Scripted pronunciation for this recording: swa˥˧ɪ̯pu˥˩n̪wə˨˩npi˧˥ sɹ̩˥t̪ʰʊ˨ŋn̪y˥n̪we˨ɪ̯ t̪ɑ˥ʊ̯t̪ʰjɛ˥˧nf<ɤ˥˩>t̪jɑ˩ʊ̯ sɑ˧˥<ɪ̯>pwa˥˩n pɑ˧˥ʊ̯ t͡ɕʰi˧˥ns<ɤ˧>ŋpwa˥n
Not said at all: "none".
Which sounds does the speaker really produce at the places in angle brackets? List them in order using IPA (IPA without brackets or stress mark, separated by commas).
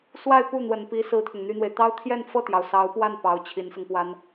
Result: ɤ˥˩, ʊ̯, ɤ˧